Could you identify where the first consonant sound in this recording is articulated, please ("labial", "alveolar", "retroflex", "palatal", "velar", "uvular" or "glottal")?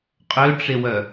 uvular